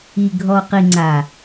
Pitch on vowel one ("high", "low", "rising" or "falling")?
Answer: low